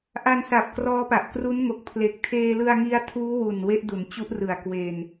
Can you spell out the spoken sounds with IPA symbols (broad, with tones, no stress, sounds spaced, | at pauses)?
ʔ a˧ n s a˨˩ p̚ k r ɔː˦˥ p a˨˩ ʔ k r u˦˥ n ŋ o˨˩ k̚ pʰ l e˨˩ k̚ tʰ eː˧ l ɯ˧ a̯ ŋ i˦˥ a̯ tʰ uː˦˥ w u˨˩ n w e˦˥ ʔ d u˩˦ n t͡ɕ u˦˥ ʔ r ɯ˨˩ a̯ k w e˧ n